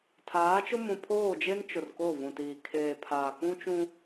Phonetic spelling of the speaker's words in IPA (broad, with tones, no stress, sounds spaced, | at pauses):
tʰ aː˨˦ t͡ʃ ʊ˦ m ũ˨ pʰ oː˦˨ d͡ʒ e˦ n t͡ʃ ʊ˨ r k o˦˨ v ũ˨ t iː˨ kʰ eː˨ pʰ aː˨ k ũ˦ t͡ʃ ũ˦